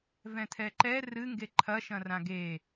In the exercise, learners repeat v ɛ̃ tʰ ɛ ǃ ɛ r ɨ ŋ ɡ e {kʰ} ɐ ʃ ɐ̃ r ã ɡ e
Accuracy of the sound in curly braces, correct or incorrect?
incorrect